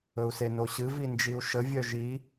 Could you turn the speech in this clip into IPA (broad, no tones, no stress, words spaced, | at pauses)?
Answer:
ɵu̯senoɕɨ vind͡ʒiu̯ʃə vʲœʒi